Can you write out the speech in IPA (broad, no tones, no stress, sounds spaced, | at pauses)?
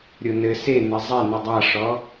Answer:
ɾʲ o n ɘ s e n ɘ zˤ ɛ n ɨ dˤ a ʂ ɔ